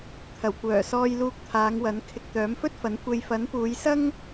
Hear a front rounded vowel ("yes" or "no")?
yes